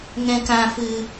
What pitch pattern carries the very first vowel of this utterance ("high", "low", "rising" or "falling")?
low